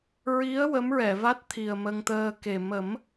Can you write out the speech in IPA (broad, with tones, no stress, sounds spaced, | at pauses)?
ɹ i˧˥ ə̯ w ə˧˥ m ɹ ɛ˨˩˨ v a˦˥ t̚ t̪ʰ i˨˩ ə̯ m ə˧ ŋ t̪ əː˧ k e˨˩ m ə˨˩˦ m